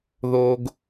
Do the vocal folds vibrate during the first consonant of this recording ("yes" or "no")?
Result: yes